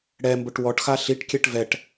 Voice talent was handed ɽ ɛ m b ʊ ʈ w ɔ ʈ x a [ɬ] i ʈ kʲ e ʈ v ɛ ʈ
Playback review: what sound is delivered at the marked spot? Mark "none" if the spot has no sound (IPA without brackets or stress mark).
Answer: ɬ